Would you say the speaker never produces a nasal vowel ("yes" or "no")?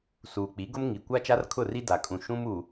no